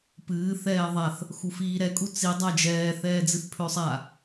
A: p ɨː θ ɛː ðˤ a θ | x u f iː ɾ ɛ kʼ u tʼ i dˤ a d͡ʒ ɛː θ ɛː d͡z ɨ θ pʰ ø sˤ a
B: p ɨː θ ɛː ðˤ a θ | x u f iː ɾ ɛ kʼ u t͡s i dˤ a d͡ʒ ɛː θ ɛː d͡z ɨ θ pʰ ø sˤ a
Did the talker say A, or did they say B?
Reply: B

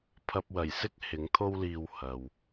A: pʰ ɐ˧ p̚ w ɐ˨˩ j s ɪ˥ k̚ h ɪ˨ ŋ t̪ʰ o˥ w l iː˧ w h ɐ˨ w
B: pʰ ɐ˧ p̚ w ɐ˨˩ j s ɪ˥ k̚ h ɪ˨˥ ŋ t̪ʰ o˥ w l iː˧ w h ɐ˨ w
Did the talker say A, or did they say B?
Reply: B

